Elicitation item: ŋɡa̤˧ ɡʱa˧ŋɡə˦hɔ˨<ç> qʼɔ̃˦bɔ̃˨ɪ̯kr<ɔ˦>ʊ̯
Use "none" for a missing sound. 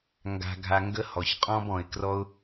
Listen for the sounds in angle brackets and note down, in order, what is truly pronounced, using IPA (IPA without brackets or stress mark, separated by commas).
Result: ç, ɔ˦